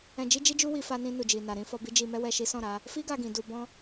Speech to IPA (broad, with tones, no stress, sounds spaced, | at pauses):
ɛ̃˧ d͡ʒ i˦ d͡ʒ i˦ d͡ʒ u˦ w i˧ f a˧ n ĩ˧ n u˨ d͡ʒ i˨ n a˨ ɾ ĩ˧ f ɔ˧ b i˦ d͡ʒ i˧ m ɛ˦ w ɛ˦ ʃ i˦ s ɔ̃˦˨ ɾ a˨˦ | f i˦ ɡ a˧ ɡ ĩ˨ d u˧ b ɔ̃˦